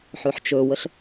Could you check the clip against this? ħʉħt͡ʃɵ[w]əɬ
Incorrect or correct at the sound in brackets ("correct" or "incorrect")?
correct